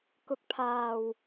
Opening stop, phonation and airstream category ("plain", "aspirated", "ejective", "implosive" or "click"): plain